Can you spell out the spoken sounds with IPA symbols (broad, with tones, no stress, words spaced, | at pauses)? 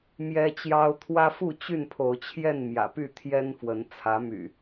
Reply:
mjɛ˦ t͡ɕjɑ˦ʊ̯ t̪ʰwä˦fu˥˨t͡ɕy˥˨n pʰo˨˦ʊ̯t͡ɕʰjɛ˥˨n mjä̰˨˩ py˥˨t̪ʰjɛ˦nfwə˨˦n t͡sʰä˨˦my̰˨˩